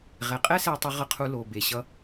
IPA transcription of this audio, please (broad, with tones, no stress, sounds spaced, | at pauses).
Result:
ʁ ɛ˩ qʼ ɛ˦ s ɛ˨ tˤ u˨ ʁ ʌ˨ qʰ u˨ l o˩ b e˩ ɕ ʌ˨